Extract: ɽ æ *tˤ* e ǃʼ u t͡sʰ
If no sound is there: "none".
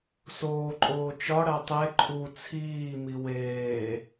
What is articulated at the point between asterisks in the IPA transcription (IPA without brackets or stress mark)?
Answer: tˤ